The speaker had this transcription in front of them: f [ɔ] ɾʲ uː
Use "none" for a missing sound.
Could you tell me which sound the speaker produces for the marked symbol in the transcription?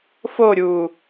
o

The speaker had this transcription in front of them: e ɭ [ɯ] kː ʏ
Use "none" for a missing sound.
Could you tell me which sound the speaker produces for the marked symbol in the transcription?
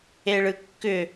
ɯ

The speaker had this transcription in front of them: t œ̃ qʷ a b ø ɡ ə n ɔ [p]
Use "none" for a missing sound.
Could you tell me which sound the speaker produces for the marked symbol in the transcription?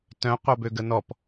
p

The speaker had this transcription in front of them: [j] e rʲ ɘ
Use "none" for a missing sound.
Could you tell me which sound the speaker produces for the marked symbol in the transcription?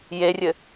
j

